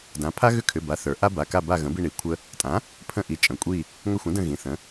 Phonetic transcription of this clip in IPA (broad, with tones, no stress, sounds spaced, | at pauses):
d ã˩˥ pʰ a˦ ɣ ʏ˦ kʰ ʏ˩˧˩ b a˩˥ θ ə˞˩˥ ʔ a˦ b a˩˧˩ k a˦˨ b a˦˨ ɣ ə̃˩˥ b i˦˨ ɳ i˩˥ kʷʰ ə˦ | tʼ ã˩˥ | pʰ ə̃˦˨ ʔ i˩˥ t͡ʃʼ ə̃˩˧˩ kʷʼ i˦˨ | ŋ ə˦˨ xʷ ə̃˩˥ d ə̃˦˨ ɣ ĩ˩˧˩ θ ə̃˩˥